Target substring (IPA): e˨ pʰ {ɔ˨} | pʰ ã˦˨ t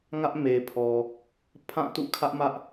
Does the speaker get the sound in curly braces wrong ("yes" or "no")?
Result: no